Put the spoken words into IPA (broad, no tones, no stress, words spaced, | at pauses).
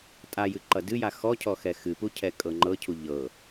tʼajɨ ǃʌdɨja xɔcʰɔ xɛxɨpu cʰɛkʼɤŋ͡ǃɤcʰu ʎɤ